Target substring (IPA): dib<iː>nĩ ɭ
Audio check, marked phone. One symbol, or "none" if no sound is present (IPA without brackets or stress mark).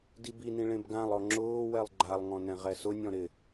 i